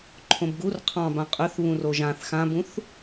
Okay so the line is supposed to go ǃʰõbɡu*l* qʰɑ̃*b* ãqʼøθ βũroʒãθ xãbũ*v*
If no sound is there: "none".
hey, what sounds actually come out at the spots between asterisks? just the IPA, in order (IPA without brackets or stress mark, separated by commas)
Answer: r, b, θ